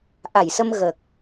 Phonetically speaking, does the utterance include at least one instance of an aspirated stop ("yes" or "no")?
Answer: no